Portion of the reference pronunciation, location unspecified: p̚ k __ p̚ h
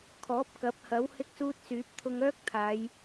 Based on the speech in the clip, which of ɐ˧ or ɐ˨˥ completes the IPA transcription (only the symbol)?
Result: ɐ˨˥